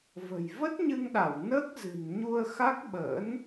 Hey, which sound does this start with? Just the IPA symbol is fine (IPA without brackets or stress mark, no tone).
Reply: v